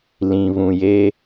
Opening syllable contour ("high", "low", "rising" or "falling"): low